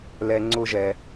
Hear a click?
yes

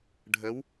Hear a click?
no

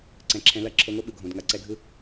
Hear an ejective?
no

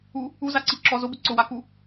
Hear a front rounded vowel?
no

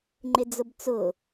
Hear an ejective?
no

